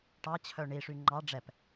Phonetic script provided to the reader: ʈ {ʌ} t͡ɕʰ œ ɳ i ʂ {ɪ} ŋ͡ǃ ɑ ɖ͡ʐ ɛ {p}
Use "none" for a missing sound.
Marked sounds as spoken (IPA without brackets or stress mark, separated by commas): ɑ, y, p